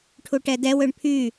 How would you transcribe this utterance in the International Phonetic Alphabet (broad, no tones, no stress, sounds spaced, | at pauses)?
ʈʰ u ʈ ɛ d ɛ w ø ɳ pʰ y